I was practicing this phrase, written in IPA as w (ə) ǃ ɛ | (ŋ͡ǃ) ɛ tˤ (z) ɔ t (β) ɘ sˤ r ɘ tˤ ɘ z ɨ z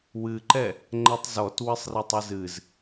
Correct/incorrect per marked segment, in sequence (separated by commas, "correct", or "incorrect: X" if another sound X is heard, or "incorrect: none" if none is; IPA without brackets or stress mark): incorrect: ɨ, correct, correct, incorrect: w